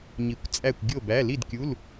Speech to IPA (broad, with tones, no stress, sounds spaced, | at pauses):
ɲ i˧˩˧ kʷ t͡sʼ æ˥˨ kʷ ɡʲ o˥˨ b æ˧˥˧ l i˥˨ d kʲ u˧˥˧ l